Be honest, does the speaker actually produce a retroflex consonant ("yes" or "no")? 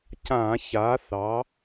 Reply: no